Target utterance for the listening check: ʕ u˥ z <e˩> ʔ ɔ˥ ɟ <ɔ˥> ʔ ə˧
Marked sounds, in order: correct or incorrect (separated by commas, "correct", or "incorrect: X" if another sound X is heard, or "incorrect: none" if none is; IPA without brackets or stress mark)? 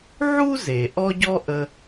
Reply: correct, correct